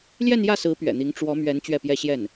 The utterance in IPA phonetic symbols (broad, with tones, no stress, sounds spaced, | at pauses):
l j ɛ˥˧ n j ä˥˩ s ɹ̩˧˥ p ɥ ɛ̰˨˩ n̪ i˧˥ ŋ ʈ͡ʂ w ɔ˧˥ m ɥ ɛ˧˥ n t͡ɕ ɥ ɛ˥˩ p j ɛ˥ ɕ j ɛ˥˩ n